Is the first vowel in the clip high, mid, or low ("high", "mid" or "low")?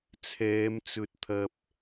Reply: mid